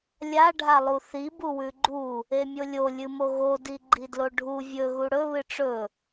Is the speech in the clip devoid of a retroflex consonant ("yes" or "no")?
no